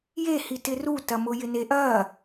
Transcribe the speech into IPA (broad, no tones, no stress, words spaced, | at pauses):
jehitɪ rutɐmʊ jɪneʔɐ